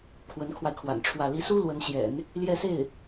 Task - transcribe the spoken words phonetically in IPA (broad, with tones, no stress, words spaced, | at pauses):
kʰwə˧˥nkʰwa˧ɪ̯kʰwa̰˨˩nʈ͡ʂʰwä˥˩ li˧˥su˥ lwə˧˥nɕjɛ̰˨˩˦n | ljɛ˥˧se˥˩ɪ̯